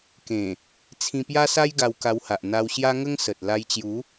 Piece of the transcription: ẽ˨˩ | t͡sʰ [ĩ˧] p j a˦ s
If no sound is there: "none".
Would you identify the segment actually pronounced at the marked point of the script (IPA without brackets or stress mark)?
ĩ˧